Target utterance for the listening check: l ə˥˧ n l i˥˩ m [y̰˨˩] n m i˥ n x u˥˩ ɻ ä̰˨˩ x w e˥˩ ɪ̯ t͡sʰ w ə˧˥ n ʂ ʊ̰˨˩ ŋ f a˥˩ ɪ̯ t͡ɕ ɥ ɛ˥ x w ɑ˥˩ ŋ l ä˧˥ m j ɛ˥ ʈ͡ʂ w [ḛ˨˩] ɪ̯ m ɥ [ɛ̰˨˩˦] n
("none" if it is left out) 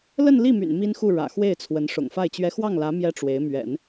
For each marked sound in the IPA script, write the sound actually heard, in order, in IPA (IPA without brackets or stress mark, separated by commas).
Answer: y̰˨˩, e˧˥, ɛ̰˨˩˦